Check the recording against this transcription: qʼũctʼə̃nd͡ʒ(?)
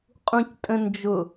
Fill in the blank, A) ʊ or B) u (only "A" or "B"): A